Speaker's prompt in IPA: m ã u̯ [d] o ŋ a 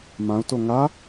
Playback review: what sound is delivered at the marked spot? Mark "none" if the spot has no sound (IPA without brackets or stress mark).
t